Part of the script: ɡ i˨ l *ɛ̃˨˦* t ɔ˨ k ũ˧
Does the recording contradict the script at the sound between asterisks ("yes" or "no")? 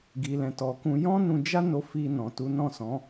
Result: yes